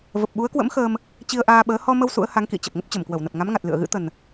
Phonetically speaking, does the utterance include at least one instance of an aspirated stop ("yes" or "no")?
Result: no